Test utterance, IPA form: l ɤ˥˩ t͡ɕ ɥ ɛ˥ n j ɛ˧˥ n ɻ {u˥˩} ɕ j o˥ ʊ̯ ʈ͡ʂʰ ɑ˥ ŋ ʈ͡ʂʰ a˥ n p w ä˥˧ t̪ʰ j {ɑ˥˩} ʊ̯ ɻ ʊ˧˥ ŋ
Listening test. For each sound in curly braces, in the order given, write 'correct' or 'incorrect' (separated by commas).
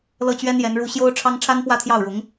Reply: correct, correct